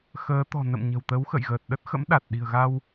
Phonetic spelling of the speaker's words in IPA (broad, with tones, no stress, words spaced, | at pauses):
xəː˨˦ t̪ɔ̤˨˩ nə̰˧˨m ɲə̤˨˩wt̪ə˨˦wxə̰˧˨j ɣəː˨˩t̚ɗə˦˥t̚xə̰˧˥mɗa˨˩t̚ ɗi̤˨˩ə̯ɣa˧w